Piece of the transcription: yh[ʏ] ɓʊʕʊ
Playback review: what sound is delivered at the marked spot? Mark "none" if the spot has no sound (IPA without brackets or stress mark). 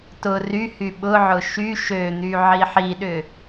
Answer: y